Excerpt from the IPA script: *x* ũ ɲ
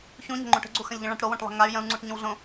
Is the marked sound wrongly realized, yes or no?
yes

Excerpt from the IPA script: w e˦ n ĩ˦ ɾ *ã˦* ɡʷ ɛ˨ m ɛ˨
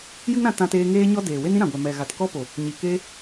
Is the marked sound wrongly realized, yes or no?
yes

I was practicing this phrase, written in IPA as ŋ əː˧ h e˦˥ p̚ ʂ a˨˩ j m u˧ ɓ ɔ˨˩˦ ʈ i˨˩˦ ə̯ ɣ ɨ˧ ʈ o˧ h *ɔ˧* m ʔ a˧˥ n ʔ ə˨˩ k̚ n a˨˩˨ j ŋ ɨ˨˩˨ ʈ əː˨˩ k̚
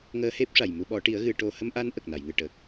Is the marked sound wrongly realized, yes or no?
yes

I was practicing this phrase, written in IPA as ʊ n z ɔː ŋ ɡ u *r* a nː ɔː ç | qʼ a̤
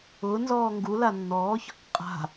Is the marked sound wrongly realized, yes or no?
yes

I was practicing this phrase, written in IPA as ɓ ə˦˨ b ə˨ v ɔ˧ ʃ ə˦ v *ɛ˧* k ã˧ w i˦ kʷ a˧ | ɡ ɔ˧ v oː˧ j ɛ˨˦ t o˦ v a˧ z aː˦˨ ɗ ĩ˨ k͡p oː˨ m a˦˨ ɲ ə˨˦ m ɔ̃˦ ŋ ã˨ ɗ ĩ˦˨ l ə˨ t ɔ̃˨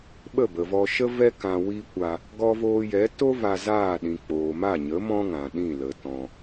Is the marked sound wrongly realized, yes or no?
yes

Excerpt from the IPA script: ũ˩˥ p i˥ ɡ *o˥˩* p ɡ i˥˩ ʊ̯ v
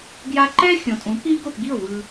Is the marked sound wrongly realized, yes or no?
no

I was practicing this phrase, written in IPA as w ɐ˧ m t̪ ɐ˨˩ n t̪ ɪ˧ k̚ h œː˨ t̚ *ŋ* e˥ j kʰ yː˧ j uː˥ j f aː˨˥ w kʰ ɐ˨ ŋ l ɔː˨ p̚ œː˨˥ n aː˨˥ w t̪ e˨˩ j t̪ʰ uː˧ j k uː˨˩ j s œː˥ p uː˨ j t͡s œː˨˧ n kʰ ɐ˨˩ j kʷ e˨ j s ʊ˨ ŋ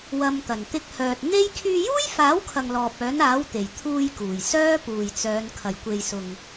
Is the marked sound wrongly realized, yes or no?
yes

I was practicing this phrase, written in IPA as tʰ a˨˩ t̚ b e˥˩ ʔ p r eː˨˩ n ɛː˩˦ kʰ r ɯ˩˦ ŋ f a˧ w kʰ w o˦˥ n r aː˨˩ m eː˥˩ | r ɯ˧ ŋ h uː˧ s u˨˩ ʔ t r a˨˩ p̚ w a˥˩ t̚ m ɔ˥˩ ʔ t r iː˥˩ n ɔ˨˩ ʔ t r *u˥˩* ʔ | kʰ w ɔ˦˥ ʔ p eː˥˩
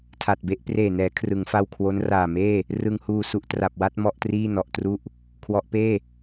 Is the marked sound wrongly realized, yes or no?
no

